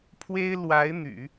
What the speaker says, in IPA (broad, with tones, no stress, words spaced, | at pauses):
pʰwe˥ɪ̯ lwa˧˥ɪ̯ n̪y̰˨˩˦